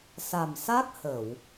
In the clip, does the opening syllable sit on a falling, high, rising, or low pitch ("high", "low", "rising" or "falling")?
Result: low